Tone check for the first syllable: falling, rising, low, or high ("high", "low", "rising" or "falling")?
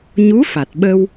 rising